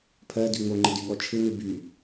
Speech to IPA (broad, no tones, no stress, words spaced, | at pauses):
pʰɜdy ŋ͡moŋ͡ǃɪ dyɠɔt͡ʃʰɪnɨ by